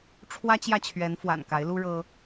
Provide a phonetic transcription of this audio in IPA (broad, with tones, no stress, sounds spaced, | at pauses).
ʈ͡ʂʰ w ä˦ t͡ɕ j ä˥˨ t͡ɕʰ ɥ ɛ˨˦ n f w a̰˨˩ n k a˨˦ ɪ̯ l u˦ ɻ ɤ˦